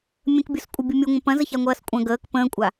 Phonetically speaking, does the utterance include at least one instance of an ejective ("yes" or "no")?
yes